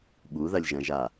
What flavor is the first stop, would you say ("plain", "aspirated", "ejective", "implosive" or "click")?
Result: implosive